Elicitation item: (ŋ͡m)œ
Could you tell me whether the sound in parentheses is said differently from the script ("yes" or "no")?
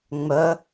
no